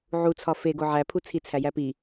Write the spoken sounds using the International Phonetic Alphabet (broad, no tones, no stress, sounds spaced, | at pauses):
ʕ u t͡sʰ ɒ f e ɡ o ʕ æ pʰ u t͡sʰ i t͡sʰ æ j æ p i